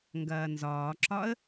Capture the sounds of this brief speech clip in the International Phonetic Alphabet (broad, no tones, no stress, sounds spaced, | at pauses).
ŋ ɡ ɐː n z ɒː ǁ ɒ ə̯